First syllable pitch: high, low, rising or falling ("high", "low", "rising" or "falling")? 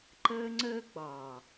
high